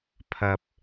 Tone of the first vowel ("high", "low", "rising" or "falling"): low